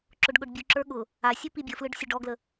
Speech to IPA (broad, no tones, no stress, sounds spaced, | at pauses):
ǁ ʊ ɖ ɠ ʊ ɖ bʲ u ǁ ə˞ ɠ ʊ | a sʲ u p i bʲ ə f l ɯ ɖ sʲ ʊ ɖ ɔ ɡ l ə